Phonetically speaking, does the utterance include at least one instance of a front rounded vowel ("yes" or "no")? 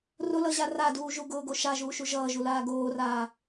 no